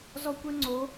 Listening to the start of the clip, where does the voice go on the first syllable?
high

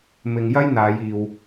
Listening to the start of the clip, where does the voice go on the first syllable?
low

